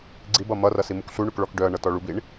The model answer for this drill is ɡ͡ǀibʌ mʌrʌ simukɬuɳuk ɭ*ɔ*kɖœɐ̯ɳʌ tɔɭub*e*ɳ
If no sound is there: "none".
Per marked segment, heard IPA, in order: ɔ, i

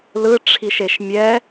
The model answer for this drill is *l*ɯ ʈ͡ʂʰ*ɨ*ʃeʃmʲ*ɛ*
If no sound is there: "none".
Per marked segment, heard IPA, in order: l, i, ɛ

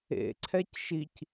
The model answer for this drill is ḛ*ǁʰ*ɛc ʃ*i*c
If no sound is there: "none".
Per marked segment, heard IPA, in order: ǀʰ, i

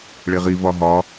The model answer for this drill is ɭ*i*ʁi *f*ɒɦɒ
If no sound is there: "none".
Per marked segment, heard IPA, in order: e, v

